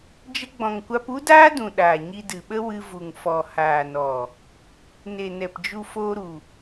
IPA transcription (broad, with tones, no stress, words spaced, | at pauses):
d͡ʒə˧ɡ͡bɔ̃˨ŋ kʷa˧pu˦daː˦dũ˨ ɗaː˨ɲi˧dɨ˨ɓə˦ wɨ˧vu˨ŋ fɔ˨ haː˨nɔ˨ | ne˨nɛ˨pd͡ʒu˧ foː˧ɾu˨